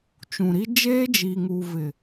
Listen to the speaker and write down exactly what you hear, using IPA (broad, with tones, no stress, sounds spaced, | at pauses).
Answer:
t͡ʃ ũ˨ ɾ i˦ d͡ʒ eː˦ d͡ʒ iː˨ ŋ u˨ v ɪ˨